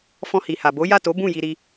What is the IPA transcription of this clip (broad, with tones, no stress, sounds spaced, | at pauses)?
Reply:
f ɔ̃˧ h i˨ h a˨ b o˨˦ j a˦˨ t o˨˦ b ũ˦˨ j i˧ ɾ i˧